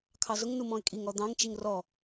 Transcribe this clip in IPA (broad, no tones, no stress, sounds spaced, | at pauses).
kʰ ɑ z ʊ ŋ n u m ɔ̃ ɪ̯ kʼ i ŋ ɔ d̪ ɑ̃ ŋ t͡ʃ i ŋ r ɔ